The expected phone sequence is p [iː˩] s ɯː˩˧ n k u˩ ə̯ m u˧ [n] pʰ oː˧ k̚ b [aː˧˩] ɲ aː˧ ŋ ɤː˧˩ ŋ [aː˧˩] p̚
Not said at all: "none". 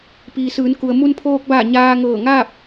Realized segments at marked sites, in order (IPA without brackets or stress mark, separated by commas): iː˩, n, aː˧˩, aː˥˨